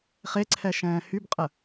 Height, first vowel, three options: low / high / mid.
mid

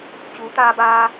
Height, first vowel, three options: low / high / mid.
high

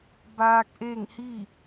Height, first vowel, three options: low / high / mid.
low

